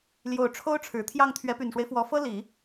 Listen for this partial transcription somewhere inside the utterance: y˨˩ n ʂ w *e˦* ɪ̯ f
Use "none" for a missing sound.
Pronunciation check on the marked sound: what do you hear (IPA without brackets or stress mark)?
e˦